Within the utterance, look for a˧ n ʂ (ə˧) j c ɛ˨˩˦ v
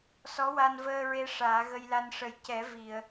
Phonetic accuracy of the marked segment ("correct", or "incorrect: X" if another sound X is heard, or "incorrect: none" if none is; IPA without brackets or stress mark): incorrect: ə˨˩